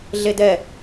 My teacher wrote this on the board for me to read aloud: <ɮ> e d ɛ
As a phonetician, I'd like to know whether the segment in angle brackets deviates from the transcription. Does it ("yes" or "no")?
no